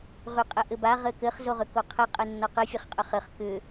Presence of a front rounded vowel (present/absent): present